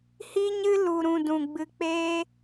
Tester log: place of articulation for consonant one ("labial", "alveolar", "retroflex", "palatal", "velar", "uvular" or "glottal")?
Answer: glottal